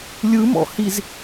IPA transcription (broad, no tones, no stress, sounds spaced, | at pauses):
lʲ ɯ m ɔ̰ h i z